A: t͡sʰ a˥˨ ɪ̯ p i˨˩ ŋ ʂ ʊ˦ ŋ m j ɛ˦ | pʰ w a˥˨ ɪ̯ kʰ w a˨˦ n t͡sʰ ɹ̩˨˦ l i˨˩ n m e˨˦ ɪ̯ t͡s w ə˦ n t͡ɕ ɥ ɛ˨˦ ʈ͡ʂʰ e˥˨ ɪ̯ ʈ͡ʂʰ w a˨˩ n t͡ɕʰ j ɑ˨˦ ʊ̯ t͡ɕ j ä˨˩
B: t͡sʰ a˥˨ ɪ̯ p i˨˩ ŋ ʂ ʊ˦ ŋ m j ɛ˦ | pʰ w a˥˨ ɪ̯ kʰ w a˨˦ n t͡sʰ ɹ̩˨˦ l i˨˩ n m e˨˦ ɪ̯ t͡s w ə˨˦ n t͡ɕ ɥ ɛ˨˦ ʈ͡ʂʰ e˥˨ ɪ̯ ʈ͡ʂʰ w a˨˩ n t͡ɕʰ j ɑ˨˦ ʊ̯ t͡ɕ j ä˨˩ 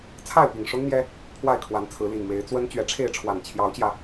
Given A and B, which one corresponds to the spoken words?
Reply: A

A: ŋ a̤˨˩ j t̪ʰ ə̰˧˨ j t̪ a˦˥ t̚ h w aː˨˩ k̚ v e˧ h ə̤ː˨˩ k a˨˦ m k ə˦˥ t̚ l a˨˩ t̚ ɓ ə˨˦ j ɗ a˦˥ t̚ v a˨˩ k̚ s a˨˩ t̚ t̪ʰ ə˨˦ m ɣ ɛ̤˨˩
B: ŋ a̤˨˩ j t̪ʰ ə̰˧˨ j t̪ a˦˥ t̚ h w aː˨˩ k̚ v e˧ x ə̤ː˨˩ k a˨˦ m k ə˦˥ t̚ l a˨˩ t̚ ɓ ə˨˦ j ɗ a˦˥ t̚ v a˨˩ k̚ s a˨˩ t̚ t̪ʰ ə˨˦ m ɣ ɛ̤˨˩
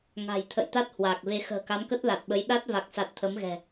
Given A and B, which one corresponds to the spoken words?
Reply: B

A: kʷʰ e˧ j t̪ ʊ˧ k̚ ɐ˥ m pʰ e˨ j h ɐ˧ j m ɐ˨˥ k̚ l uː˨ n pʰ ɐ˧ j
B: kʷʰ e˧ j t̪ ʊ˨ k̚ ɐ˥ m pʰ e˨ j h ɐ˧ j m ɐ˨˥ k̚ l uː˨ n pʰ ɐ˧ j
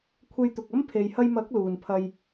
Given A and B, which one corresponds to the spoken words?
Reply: B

